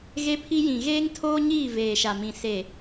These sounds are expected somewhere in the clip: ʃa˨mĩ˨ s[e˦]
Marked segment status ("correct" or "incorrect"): incorrect